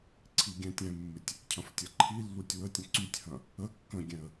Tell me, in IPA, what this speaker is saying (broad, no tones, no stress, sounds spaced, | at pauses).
ǀʰ i ɡʲ ɛ̃ tʲ ɛ̃ mː ɪ tʲ | cʰ ɐ̃ f tʲ ɐ ǃʰ i lː u tʲ w ə tʲ ɐ̃ ǀ y tʲ h ɐ̃ | ə kː ə̃ ɡʲ ɛ̃ ə̯